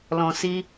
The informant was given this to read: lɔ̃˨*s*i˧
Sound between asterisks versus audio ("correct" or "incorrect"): correct